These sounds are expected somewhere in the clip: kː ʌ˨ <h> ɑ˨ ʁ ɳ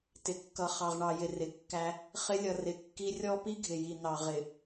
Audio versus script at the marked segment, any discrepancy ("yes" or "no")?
yes